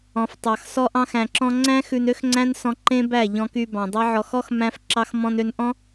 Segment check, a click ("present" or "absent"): present